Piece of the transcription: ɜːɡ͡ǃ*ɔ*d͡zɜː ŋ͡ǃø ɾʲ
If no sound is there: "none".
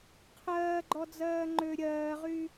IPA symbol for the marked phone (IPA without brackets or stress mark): ɔ